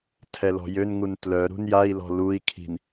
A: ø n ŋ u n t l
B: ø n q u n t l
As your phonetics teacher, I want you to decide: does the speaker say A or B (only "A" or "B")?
A